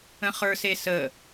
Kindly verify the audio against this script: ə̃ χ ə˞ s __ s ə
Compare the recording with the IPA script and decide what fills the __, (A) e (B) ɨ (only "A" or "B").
A